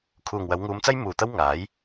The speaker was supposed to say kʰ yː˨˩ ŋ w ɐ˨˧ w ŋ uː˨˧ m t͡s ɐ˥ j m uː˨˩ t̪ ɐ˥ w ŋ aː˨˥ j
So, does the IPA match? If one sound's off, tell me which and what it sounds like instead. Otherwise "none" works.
yː˨˩ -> uː˨˩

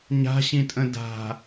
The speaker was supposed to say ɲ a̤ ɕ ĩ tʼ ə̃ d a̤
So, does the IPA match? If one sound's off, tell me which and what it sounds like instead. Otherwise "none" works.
none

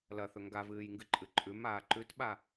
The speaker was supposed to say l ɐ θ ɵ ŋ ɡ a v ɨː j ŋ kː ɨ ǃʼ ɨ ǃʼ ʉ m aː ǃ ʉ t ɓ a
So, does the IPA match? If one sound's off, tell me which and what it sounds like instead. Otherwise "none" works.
kː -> ɡ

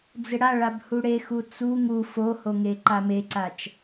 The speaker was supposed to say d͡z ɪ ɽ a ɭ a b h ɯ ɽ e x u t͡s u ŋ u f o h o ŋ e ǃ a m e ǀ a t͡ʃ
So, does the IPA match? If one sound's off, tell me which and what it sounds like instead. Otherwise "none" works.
ɯ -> u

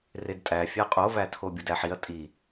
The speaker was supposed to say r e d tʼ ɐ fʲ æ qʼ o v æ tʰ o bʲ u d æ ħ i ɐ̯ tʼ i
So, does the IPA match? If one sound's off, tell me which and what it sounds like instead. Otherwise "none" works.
ɐ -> æ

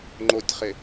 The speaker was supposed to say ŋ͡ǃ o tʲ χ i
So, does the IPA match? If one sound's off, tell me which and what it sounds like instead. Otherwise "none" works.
i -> ɪ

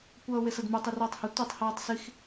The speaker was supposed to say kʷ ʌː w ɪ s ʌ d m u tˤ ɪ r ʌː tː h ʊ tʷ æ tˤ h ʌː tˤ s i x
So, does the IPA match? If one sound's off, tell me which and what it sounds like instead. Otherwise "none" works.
tː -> tˤ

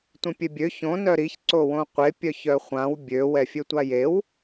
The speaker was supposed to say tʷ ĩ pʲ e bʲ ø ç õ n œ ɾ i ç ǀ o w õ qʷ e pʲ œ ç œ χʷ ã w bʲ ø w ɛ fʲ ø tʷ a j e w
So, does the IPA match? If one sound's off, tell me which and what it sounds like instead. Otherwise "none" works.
none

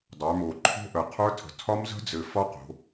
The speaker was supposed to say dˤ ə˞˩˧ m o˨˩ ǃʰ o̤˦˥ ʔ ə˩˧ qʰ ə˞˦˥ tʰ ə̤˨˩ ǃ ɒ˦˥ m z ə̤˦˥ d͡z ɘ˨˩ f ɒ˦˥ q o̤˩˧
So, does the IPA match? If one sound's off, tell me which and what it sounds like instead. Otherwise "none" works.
ǃ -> tʰ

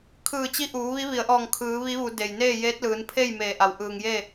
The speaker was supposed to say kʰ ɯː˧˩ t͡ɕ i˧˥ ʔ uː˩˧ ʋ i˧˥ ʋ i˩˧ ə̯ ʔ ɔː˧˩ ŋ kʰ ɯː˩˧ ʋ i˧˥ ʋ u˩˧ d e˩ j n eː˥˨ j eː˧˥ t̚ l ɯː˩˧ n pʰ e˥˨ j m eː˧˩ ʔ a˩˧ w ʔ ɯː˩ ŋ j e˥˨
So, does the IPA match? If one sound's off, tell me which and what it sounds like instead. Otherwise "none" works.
none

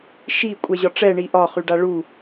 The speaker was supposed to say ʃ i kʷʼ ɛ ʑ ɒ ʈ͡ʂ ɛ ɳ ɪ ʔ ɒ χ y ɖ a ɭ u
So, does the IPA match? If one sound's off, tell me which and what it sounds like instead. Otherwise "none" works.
ɪ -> i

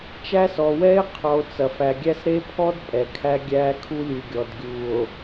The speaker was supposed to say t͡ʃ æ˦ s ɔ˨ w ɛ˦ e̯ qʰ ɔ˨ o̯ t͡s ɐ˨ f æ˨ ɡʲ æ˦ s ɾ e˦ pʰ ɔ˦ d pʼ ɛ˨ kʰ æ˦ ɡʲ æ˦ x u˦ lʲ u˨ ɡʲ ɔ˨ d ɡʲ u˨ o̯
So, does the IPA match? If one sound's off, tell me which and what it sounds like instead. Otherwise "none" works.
x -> kʰ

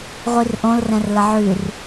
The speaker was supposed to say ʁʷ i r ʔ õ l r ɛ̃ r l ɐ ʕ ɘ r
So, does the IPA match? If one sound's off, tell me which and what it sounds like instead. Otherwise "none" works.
ɘ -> ʉ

